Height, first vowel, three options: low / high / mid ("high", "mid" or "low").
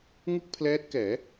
high